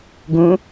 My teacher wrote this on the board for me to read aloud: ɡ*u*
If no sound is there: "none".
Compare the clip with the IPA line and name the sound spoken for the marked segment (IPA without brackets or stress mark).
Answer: ũ